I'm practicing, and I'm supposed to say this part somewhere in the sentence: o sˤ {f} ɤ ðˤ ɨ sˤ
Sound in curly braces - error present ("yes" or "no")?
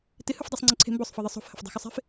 no